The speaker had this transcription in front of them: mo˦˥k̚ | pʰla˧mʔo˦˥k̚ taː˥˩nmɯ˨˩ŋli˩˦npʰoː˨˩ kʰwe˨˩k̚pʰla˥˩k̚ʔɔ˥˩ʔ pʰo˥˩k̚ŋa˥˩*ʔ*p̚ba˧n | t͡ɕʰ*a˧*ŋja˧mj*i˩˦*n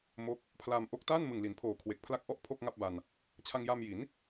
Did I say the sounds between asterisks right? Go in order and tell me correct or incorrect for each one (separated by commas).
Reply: incorrect, correct, correct